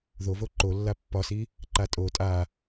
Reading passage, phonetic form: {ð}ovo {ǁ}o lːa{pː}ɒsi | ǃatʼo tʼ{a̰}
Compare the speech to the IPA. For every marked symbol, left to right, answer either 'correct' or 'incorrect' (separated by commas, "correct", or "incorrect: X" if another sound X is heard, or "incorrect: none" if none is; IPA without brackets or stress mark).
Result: correct, incorrect: ǃ, correct, incorrect: a